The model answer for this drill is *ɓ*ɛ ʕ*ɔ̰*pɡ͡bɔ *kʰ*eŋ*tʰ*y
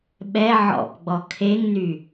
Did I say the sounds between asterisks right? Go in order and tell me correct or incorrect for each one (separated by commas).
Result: correct, correct, correct, incorrect